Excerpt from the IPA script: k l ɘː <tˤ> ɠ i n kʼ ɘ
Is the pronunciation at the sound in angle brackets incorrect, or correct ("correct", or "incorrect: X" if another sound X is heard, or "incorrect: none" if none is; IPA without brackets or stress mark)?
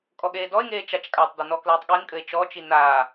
correct